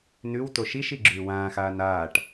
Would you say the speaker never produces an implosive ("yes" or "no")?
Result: yes